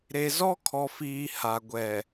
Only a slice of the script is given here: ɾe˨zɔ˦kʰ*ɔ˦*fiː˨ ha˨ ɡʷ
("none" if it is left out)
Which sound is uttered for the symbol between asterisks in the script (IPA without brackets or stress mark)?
ɔ˨